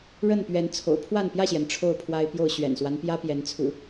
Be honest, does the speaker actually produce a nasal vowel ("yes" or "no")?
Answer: no